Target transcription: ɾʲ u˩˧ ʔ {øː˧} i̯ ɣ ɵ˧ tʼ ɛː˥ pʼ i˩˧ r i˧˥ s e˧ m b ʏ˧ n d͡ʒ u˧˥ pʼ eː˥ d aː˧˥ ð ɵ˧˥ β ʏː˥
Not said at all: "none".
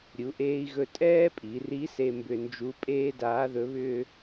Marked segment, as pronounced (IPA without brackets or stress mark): eː˧